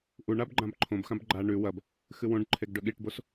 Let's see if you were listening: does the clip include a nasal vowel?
yes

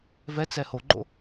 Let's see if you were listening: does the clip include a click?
yes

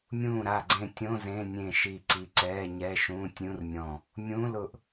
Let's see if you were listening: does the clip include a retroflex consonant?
no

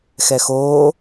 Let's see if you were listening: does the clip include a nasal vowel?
no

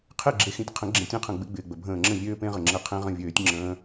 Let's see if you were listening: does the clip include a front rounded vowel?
yes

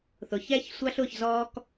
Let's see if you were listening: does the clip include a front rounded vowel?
no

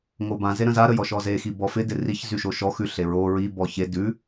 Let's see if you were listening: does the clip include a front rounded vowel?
yes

